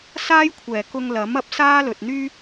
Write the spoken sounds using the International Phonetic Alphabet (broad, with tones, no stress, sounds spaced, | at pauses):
s aː˥ j kʷʰ ɛː˨˩ k ʊ˧ ŋ l ɐ˨˥ m ɐ˨˥ p̚ s aː˥ l ɵ˨ t̚ n̪ yː˥